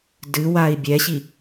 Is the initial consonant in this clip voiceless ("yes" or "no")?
no